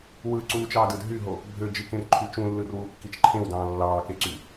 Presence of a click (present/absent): present